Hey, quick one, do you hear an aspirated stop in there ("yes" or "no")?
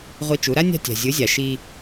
no